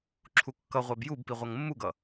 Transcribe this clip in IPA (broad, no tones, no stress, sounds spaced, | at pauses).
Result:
ǁʰ u kː ʌ ʁʷ æ b j u b p i ʁʷ ʌ ŋ mː u ɡ ʌ